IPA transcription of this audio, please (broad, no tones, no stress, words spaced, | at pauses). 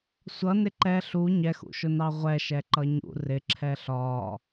sʷʌnɪ ǃɛ ɬu ɲɛxṵʃʊnɑ ʁʷɛʃɛ ǃʌɲṵ rɪǁʰɛ ɬɒ